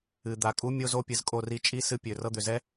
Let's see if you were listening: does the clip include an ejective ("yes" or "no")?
yes